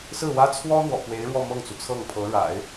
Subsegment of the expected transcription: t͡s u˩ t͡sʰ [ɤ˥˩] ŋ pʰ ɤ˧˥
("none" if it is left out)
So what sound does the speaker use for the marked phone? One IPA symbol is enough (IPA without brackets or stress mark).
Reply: ɤ˥˩